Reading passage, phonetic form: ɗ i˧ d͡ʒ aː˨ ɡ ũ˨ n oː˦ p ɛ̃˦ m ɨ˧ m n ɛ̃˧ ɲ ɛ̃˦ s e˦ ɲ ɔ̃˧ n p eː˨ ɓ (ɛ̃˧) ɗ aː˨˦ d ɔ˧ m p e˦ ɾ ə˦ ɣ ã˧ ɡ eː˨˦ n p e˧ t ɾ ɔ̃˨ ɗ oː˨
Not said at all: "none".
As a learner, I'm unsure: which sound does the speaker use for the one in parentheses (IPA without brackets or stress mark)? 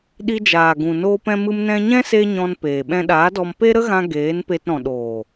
ɛ̃˧